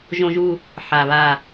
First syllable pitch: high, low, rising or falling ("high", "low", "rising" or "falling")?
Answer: high